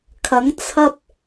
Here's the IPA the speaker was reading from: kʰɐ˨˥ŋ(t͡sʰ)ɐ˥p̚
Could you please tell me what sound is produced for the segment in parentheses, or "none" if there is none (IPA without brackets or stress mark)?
t͡sʰ